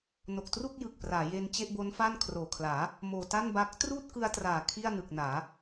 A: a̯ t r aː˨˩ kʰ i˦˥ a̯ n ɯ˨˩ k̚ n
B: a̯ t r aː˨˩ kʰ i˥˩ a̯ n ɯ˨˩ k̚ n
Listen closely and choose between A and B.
B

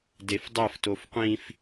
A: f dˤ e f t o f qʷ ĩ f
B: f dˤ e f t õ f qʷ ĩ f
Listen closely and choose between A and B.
A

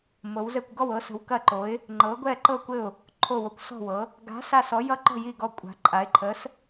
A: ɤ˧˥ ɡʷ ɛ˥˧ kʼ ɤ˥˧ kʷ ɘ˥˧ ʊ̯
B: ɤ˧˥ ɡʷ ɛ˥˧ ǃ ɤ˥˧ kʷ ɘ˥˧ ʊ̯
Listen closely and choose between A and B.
B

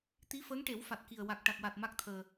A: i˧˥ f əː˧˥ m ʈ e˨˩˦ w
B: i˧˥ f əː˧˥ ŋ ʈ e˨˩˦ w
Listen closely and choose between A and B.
B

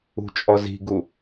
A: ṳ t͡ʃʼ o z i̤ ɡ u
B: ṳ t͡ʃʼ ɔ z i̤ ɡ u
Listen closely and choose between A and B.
B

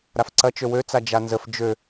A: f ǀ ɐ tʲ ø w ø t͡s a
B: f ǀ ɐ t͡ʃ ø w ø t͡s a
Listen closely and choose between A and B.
B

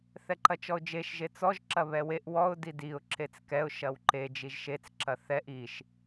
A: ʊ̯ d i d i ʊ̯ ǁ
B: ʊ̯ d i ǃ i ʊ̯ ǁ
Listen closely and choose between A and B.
A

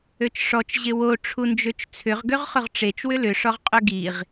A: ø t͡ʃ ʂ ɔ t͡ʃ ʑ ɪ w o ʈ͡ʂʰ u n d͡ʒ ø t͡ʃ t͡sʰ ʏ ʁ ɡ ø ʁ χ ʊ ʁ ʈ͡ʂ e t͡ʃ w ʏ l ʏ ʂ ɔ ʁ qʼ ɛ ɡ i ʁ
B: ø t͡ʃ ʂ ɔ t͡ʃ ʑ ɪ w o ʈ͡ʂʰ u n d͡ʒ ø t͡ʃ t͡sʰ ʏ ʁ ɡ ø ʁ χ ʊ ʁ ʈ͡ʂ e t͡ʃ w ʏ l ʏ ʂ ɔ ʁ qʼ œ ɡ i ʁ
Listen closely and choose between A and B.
B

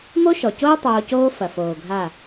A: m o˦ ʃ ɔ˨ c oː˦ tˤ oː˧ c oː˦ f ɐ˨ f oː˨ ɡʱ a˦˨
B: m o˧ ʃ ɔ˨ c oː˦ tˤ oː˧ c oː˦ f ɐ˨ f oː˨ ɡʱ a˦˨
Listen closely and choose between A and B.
A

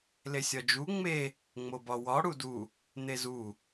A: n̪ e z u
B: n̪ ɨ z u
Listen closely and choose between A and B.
A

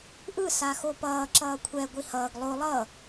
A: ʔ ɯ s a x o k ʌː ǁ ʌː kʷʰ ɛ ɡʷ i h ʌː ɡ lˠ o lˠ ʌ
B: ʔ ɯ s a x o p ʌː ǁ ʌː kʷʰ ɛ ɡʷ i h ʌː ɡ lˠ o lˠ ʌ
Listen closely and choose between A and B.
B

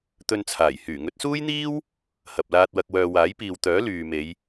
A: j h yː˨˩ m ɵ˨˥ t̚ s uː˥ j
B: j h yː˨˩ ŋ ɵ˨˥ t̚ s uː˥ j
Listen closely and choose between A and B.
B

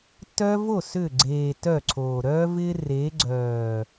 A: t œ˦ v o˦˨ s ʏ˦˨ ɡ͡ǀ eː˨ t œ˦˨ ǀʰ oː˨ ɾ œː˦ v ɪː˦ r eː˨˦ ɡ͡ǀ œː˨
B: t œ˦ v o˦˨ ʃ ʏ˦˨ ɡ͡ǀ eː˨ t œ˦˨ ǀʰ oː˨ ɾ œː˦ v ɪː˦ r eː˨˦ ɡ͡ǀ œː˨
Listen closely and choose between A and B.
A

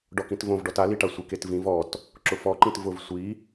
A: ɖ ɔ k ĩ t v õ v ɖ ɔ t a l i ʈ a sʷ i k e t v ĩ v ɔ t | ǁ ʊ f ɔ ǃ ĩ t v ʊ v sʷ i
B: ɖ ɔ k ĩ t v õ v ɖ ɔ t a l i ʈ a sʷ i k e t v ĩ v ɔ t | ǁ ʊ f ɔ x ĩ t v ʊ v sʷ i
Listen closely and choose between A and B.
A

